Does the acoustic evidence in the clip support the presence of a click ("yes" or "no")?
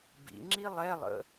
yes